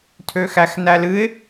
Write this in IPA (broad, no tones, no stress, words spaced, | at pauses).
tʰøxæxnælɨɪ̯